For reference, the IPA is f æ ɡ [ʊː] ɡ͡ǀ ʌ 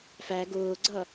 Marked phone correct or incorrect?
correct